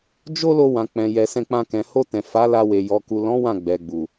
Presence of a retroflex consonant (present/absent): absent